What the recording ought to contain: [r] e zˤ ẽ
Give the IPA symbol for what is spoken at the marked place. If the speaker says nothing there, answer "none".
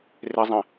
r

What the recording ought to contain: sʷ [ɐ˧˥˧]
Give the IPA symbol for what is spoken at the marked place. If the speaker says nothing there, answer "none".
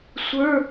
ə˞˧˥˧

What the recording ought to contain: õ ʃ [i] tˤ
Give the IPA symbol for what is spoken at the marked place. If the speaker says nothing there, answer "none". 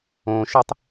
e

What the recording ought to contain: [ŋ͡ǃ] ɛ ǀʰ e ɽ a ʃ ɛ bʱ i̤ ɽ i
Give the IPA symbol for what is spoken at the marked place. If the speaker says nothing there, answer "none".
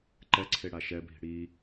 ǃ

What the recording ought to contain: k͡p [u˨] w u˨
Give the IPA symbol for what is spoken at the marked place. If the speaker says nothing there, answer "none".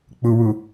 u˨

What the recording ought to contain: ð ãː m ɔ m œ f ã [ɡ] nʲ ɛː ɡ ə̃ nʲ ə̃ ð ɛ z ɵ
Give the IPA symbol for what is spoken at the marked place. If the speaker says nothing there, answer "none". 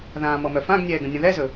ɡ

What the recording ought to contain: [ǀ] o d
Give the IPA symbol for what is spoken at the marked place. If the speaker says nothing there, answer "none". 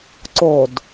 ǀ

